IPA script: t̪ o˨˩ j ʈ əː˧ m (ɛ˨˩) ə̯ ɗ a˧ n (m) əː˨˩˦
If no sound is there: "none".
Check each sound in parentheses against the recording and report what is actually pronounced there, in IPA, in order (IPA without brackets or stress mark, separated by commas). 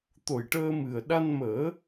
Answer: ɨ˨˩, m